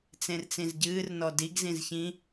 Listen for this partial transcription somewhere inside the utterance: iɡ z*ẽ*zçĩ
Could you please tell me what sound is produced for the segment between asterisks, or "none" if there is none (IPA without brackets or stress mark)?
ĩ